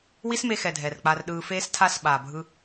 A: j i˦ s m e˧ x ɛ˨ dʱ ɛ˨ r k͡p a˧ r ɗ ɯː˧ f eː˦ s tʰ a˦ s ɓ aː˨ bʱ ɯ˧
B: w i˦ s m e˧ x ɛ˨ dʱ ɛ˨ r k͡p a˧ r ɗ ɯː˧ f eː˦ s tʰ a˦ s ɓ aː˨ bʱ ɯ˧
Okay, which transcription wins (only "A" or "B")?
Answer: B